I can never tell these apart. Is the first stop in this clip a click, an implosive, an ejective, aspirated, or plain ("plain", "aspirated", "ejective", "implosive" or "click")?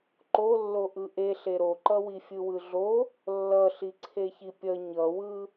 click